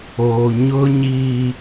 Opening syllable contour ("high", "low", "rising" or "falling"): low